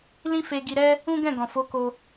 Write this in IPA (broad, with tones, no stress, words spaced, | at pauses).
lĩ˦fe˧ ɡi˧ɾɛ˦ | ũ˦ɡɛ̃˦˨ ɡɔ̃˨ fo˨˦ko˧